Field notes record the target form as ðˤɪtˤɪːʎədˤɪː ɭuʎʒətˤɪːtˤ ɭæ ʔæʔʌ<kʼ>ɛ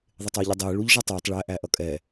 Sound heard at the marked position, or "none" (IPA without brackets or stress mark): kʼ